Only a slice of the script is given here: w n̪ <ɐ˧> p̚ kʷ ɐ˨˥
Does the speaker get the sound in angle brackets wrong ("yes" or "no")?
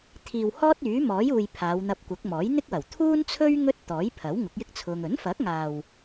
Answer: no